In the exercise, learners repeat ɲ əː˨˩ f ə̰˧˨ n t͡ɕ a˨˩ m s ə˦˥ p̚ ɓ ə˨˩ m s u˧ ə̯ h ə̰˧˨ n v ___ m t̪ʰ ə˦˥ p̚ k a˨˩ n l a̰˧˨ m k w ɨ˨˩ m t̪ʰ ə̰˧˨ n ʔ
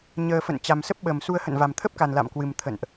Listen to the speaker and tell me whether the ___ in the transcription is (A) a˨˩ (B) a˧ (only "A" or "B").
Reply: A